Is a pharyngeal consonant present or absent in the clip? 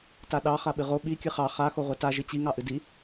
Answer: absent